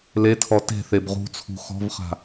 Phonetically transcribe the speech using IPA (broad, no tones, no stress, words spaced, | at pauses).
letʰɔ te̤θeb ʁṳt͡sʰṳ xɔ̤vχa̤